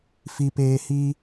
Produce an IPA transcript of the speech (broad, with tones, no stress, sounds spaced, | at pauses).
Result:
f i˧ p eː˧ h i˦